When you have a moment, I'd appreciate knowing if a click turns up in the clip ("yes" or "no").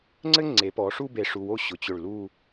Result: yes